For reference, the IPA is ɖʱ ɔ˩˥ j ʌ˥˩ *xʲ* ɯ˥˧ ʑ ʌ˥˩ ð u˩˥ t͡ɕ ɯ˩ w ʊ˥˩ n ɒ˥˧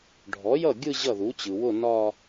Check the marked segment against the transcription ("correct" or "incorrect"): incorrect